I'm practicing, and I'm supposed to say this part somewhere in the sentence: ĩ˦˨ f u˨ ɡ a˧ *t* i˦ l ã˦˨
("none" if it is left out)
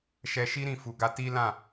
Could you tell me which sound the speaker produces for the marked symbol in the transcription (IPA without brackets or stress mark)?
t